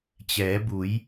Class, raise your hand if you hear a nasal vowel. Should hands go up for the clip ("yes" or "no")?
no